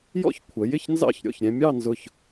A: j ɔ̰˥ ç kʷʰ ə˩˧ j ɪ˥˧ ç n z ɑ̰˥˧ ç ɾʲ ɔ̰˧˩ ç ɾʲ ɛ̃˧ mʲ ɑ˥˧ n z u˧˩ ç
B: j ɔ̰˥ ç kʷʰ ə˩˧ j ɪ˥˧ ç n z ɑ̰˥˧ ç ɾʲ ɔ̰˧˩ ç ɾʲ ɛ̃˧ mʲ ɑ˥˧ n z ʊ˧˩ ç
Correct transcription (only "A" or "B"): B